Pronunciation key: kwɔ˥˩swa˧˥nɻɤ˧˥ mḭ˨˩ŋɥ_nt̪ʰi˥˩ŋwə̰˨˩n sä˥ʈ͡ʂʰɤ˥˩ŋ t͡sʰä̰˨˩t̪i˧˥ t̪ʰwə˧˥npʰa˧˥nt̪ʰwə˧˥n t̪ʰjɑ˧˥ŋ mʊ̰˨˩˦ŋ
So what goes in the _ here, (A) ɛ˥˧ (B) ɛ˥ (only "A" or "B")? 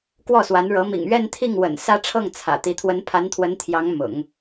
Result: A